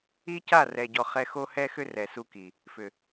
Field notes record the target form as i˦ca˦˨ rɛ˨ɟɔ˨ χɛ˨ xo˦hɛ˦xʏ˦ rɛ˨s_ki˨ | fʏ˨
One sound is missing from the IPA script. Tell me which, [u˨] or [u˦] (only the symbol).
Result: u˦